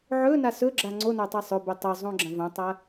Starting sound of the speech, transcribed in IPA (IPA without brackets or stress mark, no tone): ʕ